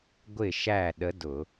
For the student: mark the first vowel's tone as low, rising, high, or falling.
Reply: falling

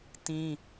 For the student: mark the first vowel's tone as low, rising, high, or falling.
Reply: high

